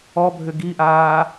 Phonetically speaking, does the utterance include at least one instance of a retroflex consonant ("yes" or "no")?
no